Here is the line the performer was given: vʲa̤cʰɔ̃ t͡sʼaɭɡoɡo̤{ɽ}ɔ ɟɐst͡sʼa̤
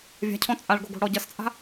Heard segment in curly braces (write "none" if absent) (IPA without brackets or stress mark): ɽ